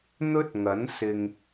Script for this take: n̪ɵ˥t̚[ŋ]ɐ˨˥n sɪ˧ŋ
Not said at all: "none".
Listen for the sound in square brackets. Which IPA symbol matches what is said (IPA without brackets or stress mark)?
ŋ